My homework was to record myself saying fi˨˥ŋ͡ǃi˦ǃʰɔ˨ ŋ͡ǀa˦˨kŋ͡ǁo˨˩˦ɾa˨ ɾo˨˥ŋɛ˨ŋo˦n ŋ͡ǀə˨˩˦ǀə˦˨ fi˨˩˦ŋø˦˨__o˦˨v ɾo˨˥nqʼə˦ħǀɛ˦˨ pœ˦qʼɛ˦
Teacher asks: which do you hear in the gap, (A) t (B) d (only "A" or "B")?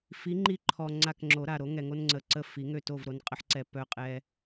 A